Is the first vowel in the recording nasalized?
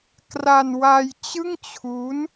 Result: no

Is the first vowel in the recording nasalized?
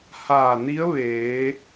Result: no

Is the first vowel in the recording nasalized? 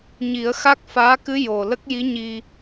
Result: no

